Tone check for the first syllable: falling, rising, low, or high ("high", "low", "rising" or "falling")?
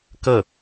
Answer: falling